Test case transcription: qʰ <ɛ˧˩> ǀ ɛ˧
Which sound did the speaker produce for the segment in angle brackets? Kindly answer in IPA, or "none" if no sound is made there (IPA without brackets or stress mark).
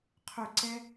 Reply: ʏ˧˩